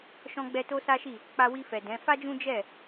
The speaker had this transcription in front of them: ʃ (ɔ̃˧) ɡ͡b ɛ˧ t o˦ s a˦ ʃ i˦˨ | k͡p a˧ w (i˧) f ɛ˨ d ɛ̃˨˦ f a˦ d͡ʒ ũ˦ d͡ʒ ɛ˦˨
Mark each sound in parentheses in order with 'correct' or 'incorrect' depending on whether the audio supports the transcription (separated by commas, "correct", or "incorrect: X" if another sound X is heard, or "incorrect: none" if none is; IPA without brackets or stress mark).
correct, correct